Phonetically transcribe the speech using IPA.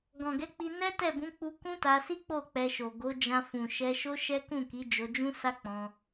ɡ ɔ̃˨ ɡ ɛ˨˦ k͡p i˧ n ɛ˦ t ɛ˦˨ b ũ˨˦ k͡p u˧ k ũ˦ t a˧ s i˦ k͡p o˦˨ k͡p ɛ˧ ʃ o˨ ɡ o˨˦ d͡ʒ ã˧ f ũ˨ ʃ ɛ˧ ʃ o˦ ʃ ɛ˦ k ũ˦˨ k i˨˦ d͡ʒ o˧ d͡ʒ ũ˦ s a˦ k͡p ɔ̃˧

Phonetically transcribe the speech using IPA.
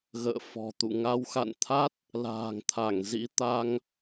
ɣ ə̰ː˧˨ f ɔ̤˨˩ t̪ ṵ˧˨ ŋ a˨˦ w x a̰˧˨ n t̪ʰ a˦˥ t̚ | l a̤ː˨˩ ŋ t̪ʰ a˧˩ ŋ z ḭ˧˥ t̪ a˧ ŋ

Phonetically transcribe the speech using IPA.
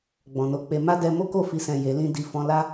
ɡ͡b ɔ̃˨ n o˧ k͡p e˧ m a˦ d ɛ˧ m o˦ k o˦˨ f i˧ s ɛ̃˨ j e˨˦ l ĩ˦ d i˦˨ f ɔ̃˧ l a˦

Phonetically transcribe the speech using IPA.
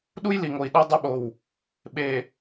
ɗ u˦ j l i˨ ŋ o˨ i̯ ɗ æ˦ dˤ u˦ ɓ o˨ w | ɓ e˨

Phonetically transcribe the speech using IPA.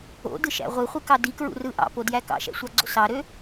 o̰ d ɯ ʃ æ̰ ʁʷ ɯ χʷ ɯ k ɑ d i k ɹ ṵ r ɯ ʔ ɑ̰ p o d j æ k ɑ̰ ʃ æ̰ sʷ ɑ ɡ͡ǀ o̰ s ɑ ɾ ø

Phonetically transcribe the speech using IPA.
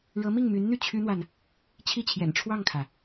ɻ ɤ˧˥ m i˥˩ ŋ m y˧˥ n n̪ y˥˩ t͡ɕʰ y˥ n̪ w a˨ n | t͡ɕʰ i˥˩ t͡ɕʰ j ɛ̰˨˩ n ʈ͡ʂʰ w ɑ˥˩ ŋ kʰ ä˩

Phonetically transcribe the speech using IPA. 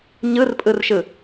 ɲ ɯ r pʼ ɯ r ʃ ɯ

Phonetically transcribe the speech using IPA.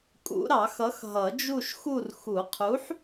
kʼ ṵ˨˩˦ ɾ ɑ˨˩˦ x ʌ˨˥ x ɦ ʌ˨˩˦ d͡ʒ u˦˨ ʃ x u˦˨ r x u˨˩˦ qʰ u˨˥ ħ

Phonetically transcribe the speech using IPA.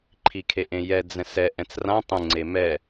ǃʰ i kʰ e ʔ ẽ j ɛ d͡z ɛ̃ s ɛ ʔ ɛ̃ t͡s r ã tˤ ũ ŋ͡ǀ e m ɛ

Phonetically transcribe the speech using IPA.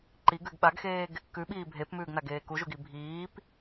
ǃ i ɡ ʉ ɡ ɓ a ɡ x eː ɡ | k ʉ ɓ iː bʱ e p m ʉː ɡ n a ɡ eː k u ʒ u ɡ i bʱ iː p

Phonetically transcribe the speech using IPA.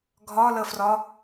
ɡʱ ɒ l ə f r ɒ

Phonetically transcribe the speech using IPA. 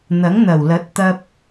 n̪ ɐ˨˥ ŋ n̪ ɐ˨˩ w l ɐ˨˥ t̚ t̪ ɐ˧ p̚

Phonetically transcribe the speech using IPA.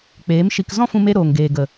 k͡p eː˨˦ m ʃ i˧ k z ɔ̃˦ f ũ˧ m e˧ ɾ oː˨ ŋ ɡ eː˨ ɡ ə˨

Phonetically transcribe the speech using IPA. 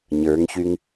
ɲ ə˞ ŋ ç y ŋ

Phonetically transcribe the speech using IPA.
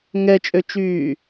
ŋ ɛ t͡ʃʼ ø t͡ʃ yː

